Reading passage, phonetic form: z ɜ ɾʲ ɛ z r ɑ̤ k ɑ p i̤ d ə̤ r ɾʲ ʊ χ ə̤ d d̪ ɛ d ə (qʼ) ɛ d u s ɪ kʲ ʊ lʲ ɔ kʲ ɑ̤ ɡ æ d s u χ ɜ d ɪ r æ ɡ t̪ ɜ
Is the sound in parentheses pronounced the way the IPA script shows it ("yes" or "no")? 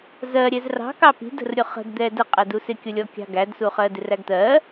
yes